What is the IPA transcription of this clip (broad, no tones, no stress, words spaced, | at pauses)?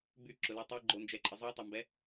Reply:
byǁʊly tˤeɡ͡ǃond͡ʒɛǃʼə zˤotˤɐmbɛ